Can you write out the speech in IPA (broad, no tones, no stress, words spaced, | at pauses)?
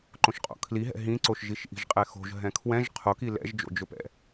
ǃõʃqʼo̰kʰliɦɛ̰ ɦĩǀoʃ ʒiʃʔi̤ʒqʼɛxo̤ʒ ɦɛ̃kʰwɛ̃ʒ qʰoki lɛ̰ʒd͡ʒo̰d͡ʒɵpɛ̰